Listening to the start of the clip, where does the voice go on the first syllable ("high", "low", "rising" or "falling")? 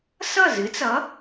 falling